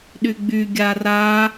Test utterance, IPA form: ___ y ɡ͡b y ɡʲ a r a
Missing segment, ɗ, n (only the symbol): ɗ